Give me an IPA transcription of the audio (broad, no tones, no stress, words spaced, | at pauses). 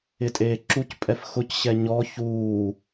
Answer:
ɪtʼeːǁucpʼɛf xʊcɕɛ ɲɔ çuː